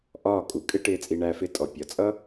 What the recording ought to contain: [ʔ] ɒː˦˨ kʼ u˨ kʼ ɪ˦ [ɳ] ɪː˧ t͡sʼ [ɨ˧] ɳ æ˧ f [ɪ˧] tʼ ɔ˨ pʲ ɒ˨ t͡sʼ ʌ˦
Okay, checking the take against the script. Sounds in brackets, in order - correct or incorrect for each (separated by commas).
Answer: correct, incorrect, incorrect, incorrect